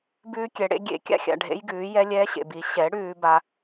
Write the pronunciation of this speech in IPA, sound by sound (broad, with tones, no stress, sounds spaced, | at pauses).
b ʉː˧ kʲ ɛ˨ ɽ ḛ˧ ɡʲ ḛ˨˦ kʲ a̰˧ xʲ a̰˨ ɖʱ ḛ˦ j ɡ ʉː˨˦ j ɛ˦ lʲ ɛː˦ ɕ ḛ˨ b i˨˦ ɕ ɛ˨˦ ɽ ʉː˧ b a˧